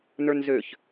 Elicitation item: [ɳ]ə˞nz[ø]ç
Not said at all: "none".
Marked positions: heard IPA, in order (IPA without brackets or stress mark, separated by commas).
n, ø